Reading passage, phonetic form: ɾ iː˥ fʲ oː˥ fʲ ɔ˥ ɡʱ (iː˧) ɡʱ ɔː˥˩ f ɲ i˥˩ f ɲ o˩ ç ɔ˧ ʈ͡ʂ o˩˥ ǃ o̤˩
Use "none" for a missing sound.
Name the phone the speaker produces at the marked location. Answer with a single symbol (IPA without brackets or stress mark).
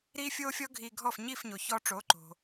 iː˧